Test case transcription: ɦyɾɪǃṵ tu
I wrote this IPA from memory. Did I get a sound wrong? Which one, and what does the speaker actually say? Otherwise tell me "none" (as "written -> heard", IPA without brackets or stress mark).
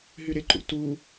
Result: none